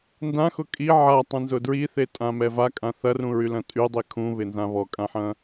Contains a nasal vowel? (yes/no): yes